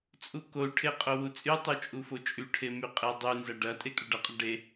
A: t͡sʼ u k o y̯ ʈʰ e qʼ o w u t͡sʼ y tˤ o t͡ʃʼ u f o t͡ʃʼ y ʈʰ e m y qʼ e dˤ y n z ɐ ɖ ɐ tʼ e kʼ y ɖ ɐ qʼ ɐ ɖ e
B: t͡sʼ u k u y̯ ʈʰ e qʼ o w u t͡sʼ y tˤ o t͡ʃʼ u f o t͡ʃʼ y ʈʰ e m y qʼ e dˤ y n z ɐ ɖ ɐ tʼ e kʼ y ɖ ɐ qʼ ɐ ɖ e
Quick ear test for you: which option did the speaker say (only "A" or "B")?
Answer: A